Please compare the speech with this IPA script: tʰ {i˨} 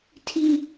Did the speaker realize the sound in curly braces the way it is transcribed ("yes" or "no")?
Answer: no